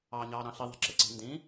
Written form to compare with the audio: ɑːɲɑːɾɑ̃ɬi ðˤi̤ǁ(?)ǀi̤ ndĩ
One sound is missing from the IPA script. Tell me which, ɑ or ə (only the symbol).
ə